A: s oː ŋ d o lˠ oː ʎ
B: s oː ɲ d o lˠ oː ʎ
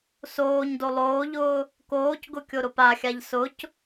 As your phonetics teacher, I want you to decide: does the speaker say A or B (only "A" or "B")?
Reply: B